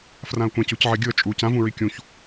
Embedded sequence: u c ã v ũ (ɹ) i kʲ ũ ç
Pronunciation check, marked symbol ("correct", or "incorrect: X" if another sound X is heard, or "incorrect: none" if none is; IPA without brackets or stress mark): correct